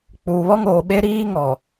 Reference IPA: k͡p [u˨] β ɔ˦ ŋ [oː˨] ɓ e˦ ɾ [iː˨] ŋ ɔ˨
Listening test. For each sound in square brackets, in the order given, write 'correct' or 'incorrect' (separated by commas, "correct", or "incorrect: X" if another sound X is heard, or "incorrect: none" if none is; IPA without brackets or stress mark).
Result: incorrect: uː˨, correct, incorrect: iː˦